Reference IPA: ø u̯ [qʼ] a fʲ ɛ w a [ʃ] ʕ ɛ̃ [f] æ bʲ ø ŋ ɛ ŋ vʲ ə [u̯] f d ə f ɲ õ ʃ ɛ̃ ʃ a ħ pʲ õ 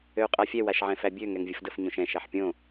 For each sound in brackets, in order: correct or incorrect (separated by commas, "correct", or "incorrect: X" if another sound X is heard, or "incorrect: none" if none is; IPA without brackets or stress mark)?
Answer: correct, correct, correct, incorrect: none